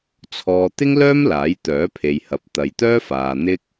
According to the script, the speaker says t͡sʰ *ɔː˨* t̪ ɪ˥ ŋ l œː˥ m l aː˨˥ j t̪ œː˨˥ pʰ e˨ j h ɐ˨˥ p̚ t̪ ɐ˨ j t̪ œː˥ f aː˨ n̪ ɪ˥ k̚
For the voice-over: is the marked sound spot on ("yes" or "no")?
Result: yes